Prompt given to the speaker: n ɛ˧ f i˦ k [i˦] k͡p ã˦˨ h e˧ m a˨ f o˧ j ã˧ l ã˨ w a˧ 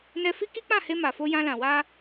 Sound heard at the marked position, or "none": i˦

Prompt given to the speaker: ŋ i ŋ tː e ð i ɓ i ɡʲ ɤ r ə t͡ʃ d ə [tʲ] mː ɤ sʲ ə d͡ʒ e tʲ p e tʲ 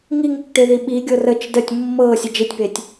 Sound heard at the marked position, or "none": tʲ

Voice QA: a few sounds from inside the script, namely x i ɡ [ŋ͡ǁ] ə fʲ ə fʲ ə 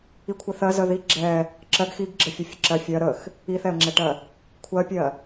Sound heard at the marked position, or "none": ɡ͡ǁ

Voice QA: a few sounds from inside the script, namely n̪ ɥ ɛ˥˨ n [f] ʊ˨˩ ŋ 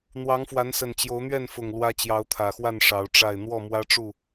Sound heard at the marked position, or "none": f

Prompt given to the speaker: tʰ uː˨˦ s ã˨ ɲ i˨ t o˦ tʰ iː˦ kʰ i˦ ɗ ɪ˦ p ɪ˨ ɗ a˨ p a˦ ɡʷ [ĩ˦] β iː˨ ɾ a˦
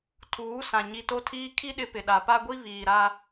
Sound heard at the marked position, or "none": i˦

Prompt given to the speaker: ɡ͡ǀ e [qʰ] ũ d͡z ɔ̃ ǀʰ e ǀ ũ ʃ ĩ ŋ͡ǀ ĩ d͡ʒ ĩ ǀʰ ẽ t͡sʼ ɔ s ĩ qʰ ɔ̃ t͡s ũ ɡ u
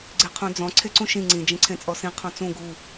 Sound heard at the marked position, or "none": qʰ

